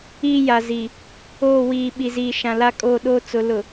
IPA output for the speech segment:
iː˦ j a˨ z i˨ | oː˦˨ w iː˨ ɓ i˨ z iː˨ ʃ ã˨ l a˦ kʼ oː˦˨ ɗ oː˦ t͡s ʊ˨˦ l ʊ˨

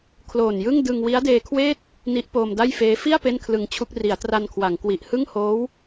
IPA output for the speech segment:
kʰ l oː˨˩ n j ɯ˥˩ ŋ d ɯ˧ ŋ w i˦˥ a̯ d eː˧ kʰ w eː˥˩ t̚ | n i˦˥ ʔ p oː˧ m d a˥˩ j f eː˦˥ f i˥˩ a̯ p e˥˩ n kʰ l ɯ˧ ŋ t͡ɕʰ u˥˩ k̚ r i˩˦ a̯ t r a˧ n kʰ w a˩˦ ŋ k w i˨˩ ʔ h ɯ˥˩ ŋ h oː˦˥ w

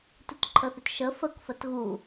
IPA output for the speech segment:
t u t ǃʰ ə θ ʏ t ʃ ə f ə k f ə t ɣ u

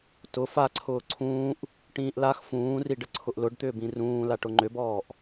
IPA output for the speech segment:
t ʊ f a ǀʰ ʊː ǀʰ ũː ʔ | ʈ ĩː ʔ l a x f ũː r i ɖ ə ǀʰ ʊ ʔ l ʊ ɖ t̪ ʏː b ĩ r ũː l a ʈ ʊ ŋ͡ǃ ʏ b ɔː ʔ

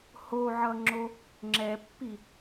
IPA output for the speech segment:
h o ʕ ʌ ŋ͡ǁ o | ŋ͡ǁ ɛ pː i

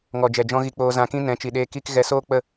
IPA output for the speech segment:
ŋ ɔ˨ d͡ʒ ɛ˨ d͡ʒ ɔ̃˧ ɣ i˧ k͡p oː˧ z ã˧ k ĩ˦ n ɛ̃˨˦ t͡ʃ i˨ ɗ eː˧ k i˦ k ɣ ɛ˧ s oː˦ k͡p ə˦˨

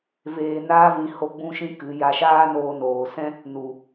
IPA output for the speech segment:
v eː˧ n aː˦ v ĩ˧ h o˦ ɡ͡b ũ˦ ʃ ĩ˦ k ɨ˨˦ j a˧ ʃ aː˦ n oː˧ n oː˨ s ɛ̃˦ | n u˨

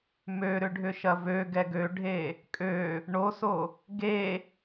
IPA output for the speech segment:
m ø ɾ ʏ ɖʱ ʏ ʃ ɐ v ø ɡ ɛ ɡ ø ɖʱ e | kʼ ø | ɳ o s o | ɡ e

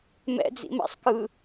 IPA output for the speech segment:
m ɛ̰ d͡z ḭ m a̰ sˤ k ɯ

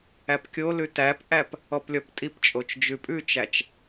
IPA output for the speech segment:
æ p kʲ o l ʉ t æ p ʔ æ p | ɔ p lʲ ɔ p tʼ i p t͡ʃʼ o t͡ʃ d͡ʒ ʉ pʼ ʉ t͡ʃ æ t͡ʃ

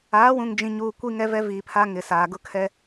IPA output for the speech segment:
aː˨˦ w ũ˨ ŋ d͡ʒ ĩ˨ ɲ uː˨ kʷ i˦ ŋ ɛ˦ v ɛ˦ v iː˨ pʰ a˦ ŋ ɪ˨ s aː˨ ɡ ʊ˦ kʰ ɛ˦

